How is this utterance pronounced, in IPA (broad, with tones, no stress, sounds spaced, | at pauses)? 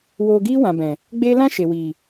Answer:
w oː˧ ɡ iː˦ w ã˨ b ɛ̃˨ | ɡ͡b e˦ l ã˦ ʃ e˨ w iː˨